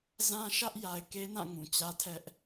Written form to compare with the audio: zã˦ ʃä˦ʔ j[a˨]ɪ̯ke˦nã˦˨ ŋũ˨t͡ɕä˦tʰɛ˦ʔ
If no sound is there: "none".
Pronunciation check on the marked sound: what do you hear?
a˨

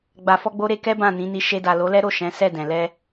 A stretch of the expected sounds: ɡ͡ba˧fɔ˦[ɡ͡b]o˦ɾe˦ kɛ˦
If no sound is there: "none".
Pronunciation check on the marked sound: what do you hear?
ɡ͡b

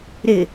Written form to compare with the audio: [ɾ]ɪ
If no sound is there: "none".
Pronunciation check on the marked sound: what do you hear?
ɾ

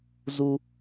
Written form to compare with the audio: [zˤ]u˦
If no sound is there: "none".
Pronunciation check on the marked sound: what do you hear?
z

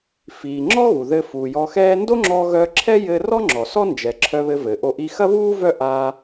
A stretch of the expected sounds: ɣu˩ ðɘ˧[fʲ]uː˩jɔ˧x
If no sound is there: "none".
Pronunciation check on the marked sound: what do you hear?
f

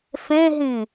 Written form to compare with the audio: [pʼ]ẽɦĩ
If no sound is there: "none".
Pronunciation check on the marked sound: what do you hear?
f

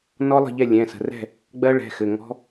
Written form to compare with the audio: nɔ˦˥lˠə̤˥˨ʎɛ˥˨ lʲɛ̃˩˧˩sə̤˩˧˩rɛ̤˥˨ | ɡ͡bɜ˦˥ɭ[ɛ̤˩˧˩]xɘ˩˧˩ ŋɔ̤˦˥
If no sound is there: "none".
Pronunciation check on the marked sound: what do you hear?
ɛ̤˩˧˩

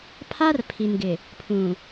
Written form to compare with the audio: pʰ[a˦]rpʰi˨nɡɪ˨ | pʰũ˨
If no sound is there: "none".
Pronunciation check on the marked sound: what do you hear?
a˦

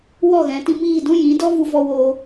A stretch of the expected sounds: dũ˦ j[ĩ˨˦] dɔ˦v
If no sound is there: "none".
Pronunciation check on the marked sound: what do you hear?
ĩ˨˦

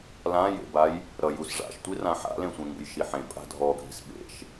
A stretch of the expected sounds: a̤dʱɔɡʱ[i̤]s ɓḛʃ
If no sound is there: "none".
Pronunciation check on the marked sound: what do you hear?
i̤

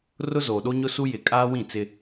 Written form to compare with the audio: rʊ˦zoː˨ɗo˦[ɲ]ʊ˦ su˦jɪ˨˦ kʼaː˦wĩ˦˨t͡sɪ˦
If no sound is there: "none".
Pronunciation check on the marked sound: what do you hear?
ɲ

